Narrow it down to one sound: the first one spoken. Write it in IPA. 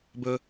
b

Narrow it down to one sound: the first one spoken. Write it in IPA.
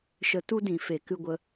ʃ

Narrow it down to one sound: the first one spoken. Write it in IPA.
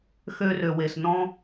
x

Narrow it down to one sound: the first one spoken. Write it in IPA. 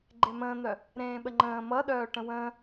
ɡ͡ǃ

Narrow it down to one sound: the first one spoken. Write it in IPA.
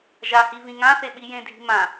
ʒ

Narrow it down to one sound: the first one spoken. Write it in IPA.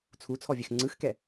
t͡sʰ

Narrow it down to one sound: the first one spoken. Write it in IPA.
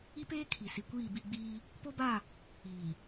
i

